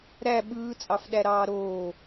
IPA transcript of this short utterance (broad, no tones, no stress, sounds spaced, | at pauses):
ɾ æ ɓ ɯː t͡sʼ ɑ f ɗ æ ɾ ɑː ɾ oː